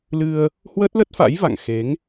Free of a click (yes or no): yes